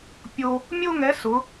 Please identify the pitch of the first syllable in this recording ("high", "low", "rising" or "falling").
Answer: high